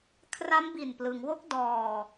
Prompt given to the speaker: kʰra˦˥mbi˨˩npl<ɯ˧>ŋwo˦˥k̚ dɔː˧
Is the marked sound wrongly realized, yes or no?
yes